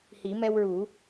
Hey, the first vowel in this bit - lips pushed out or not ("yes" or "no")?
no